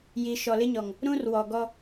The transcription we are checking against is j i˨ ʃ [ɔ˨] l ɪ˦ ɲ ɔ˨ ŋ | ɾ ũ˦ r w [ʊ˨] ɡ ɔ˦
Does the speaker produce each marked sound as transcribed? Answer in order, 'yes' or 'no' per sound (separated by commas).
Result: yes, no